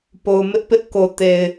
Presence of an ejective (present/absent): absent